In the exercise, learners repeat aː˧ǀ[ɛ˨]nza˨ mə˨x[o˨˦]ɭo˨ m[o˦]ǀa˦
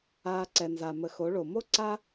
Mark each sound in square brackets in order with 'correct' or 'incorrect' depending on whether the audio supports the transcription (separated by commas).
correct, correct, correct